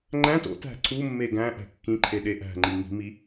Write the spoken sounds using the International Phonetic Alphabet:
ŋ͡ǃæ̃t o̰tæ̤ ǀumːe ɡæ̃ʔæ̤ kːĩǃʰe ɗeʔæ̤ŋ͡ǃi ŋi̤mi

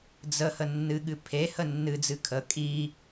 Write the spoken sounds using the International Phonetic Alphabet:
d͡zə hənːɨɠɨ pʰehə nːɨd͡zɨ kʰə kʼi

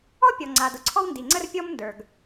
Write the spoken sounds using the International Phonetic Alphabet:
ɔ˥pʲɔ˩ ŋ͡ǀa˩dʊ˩ ǀʰɔ˥wndi˩ŋ͡ǀə˥r pʲɔ˥mndə˞˩ɡ

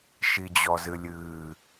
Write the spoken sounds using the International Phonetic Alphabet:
ʃid͡ʑɔzɨlʲɨː

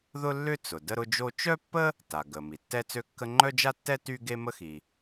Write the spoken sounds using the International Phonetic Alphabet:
ðʊ˥lːʏ˥ t͡sʊ˩ də˥ɾʊ˥d͡ʒo˥ t͡ʃœ˥pːə˥ | ta˩ɡə˩ mi˩tːɛ˥t͡sø˥kːə˥ ŋ͡ǃœ˥d͡ʒa˥tːɛ˥ ty˥ ɡe˥mə˥xi˩

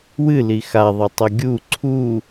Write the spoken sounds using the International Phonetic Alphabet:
wɨli xaðˤɐtˤo ɡʲu ǀʰu

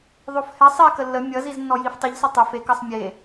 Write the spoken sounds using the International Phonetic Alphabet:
ðˤofhɛ sˤɛ kəlːə mʲʌ ziznːɔjiftˤiʎ sʌtˤʏ fek ʌsˤmʲe

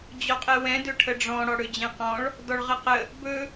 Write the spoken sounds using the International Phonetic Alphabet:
d͡ʑɔqʼɛwɛ̃ dɵʈʰəɖ͡ʐɔ̃ ɽɔɽɵd͡ʑɛ̃qɔ̃ɭ | dɔɭʁəqə | bɵ

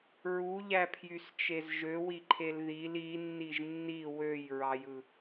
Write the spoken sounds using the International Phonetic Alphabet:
ɹuʎæpʰjyst͡ʃez ʒøwiǃʰel ðil inːiʒ nːi wøjɹɑjɯ

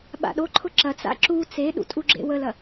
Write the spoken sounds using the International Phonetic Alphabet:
ɓa̰ɗoǃʰʊ ǁɐt͡sa̰ ǁu t͡seɗṵ tʼuɡ͡ǁḛwəlɐ

